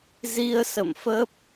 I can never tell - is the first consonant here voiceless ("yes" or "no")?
no